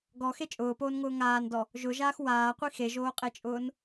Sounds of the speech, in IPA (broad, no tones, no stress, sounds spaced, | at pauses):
ɡ ɔ x e t͡ʃʼ ʊː p oː n ŋ ʊː ŋ aː n d ɔ | ʒ ʊ ʒ aː x w aː qʷ i x e ʒ oː qʼ e t͡ʃʼ ʊː n